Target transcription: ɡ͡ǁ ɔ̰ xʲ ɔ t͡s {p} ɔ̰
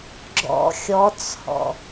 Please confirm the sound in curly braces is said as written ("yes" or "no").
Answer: no